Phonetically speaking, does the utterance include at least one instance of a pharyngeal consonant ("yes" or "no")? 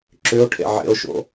yes